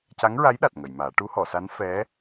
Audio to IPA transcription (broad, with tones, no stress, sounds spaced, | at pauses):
c a˧˥ ŋ ɹ a˧˥ j ɗ a˨˩ t̚ ŋ ə˨˩˨ j m aː˨˩˦ ʈ u˧˥ h ɔ˨˩˨ s a˧˥ n f ɛ˧˥